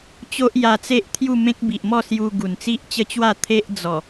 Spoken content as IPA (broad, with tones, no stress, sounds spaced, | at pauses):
t͡ɕ o˦ ʔ j a˧ t͡s e˦ ʔ t̪ʰ j u˥˧ m ẽ˦ k̚ b i˨ ʔ m ɔ˥˧ s j u˧ ɡ u˨˩ n t͡s i˦ ʔ t͡ɕ ə˦ t͡ɕ w a˥˧ t̪ʰ e˦ ʔ d͡z ɔ˨˩